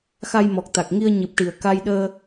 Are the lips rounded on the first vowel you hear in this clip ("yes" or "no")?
no